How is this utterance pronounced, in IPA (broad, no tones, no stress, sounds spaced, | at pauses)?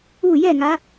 u j ɛ ŋ a